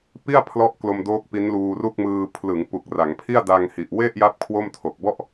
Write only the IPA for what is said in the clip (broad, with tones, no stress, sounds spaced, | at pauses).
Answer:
p i˥˩ a̯ pʰ l ɔ˥˩ ʔ k l o˧ m d oː˦˥ k̚ p i˦˥ n l uː˧ r u˥˩ k̚ m ɯː˧ pʰ l ɯ˩˦ ŋ p u˨˩ k̚ r a˩˦ ŋ pʰ i˥˩ a̯ d a˧ ŋ h i˨˩ ʔ w e˥˩ ʔ j a˦˥ p̚ kʰ w o˥˩ m tʰ o˨˩ k̚ b ɔ˥˩ ʔ